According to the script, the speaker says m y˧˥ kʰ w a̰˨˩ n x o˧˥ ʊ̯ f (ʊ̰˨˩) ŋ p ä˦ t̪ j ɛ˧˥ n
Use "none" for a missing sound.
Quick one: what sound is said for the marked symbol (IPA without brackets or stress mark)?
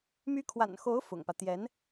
ʊ̰˨˩